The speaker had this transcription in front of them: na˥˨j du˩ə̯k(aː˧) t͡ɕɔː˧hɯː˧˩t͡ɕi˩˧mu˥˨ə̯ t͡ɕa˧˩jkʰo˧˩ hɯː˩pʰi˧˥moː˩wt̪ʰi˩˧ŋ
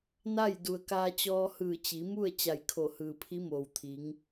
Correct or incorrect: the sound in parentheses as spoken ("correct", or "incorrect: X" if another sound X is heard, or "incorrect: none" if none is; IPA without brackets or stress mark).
correct